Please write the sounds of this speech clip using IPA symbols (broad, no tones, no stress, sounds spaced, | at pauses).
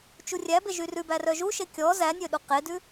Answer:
t͡ʃ u rʲ æ b e ʒ y r ʉ b æ r œ ʒ u ʃ e kʲ ɔ z æ nʲ ø ɗ u q e d ʉ